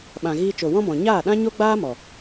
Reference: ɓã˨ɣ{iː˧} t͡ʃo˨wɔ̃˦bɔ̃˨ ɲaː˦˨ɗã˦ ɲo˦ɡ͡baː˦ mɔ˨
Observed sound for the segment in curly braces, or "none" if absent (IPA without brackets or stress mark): iː˧